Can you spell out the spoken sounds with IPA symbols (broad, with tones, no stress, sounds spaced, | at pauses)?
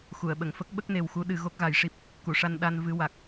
x u˨˩˨ ə̯ ɓ ə˨˩˨ ŋ f ə˦˥ k̚ ɓ ə˦˥ k̚ n e˨˩ w x u˧˥ ɗ ɨ˨˩˦ ɣ o˦˥ k̚ ɣ a˨˩˦ j ʂ i˦˥ p̚ | k u˨˩˨ ʂ a˧ n ɗ a˧ n v ɨ˧ w a˨˩ k̚